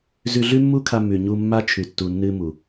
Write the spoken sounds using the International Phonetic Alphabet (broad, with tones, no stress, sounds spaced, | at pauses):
z ʉ˧ ɮ ʉ˦ mː u˦ kʰ a˧ m ʉ˨ ɲ u˧ mː a˦ t͡ʃʰ ʉ˨ tː u˨ nː ɨ˧ m u˨